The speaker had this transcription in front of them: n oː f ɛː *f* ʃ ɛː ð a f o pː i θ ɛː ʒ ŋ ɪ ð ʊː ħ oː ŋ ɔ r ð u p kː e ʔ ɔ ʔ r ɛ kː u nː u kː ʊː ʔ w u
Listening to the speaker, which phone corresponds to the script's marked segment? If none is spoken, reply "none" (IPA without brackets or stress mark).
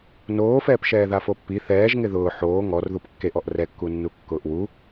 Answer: p